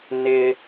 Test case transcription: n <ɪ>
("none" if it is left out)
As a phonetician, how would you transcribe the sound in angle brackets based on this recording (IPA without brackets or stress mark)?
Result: ɪ